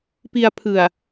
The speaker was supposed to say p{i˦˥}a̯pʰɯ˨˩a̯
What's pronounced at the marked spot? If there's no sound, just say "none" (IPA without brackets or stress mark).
i˧